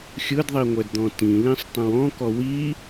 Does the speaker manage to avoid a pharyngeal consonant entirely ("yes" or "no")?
yes